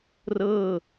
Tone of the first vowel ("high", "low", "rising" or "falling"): falling